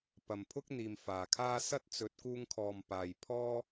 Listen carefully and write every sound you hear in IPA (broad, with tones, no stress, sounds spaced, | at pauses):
p ɐ˨ m pʰ ʊ˥ k̚ n̪ iː˨ m f aː˨ kʰ aː˥ s ɐ˥ t̚ t͡s ɵ˨˥ t̚ k uː˧ ŋ kʰ ɔː˨ m p aː˨ j pʰ ɔː˥